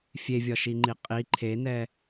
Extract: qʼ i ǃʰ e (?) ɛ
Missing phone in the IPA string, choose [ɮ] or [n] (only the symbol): n